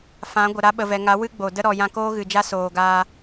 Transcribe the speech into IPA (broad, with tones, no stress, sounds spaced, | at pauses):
f ã˨˦ ɡʷ ə˨ ɾ a˧ ɓ ə˨ v ɛ˨ ŋ a˨˦ w ɨ˦ ɡ͡b o˨ d ə˦ ɾ ɔ˨ j ã˧ k oː˦ ɣ ɨ˨ d͡ʒ a˦ s oː˨ ɡ aː˧